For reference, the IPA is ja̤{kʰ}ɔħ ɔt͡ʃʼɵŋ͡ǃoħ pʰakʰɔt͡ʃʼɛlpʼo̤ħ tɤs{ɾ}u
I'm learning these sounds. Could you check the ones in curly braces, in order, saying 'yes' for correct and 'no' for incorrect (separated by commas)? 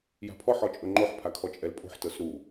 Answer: no, yes